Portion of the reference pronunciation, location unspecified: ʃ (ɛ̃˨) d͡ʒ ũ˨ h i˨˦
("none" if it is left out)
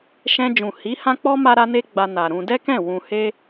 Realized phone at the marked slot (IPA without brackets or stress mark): ɛ̃˧